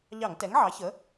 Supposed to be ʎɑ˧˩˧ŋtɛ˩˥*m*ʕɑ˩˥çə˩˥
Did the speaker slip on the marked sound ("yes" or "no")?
yes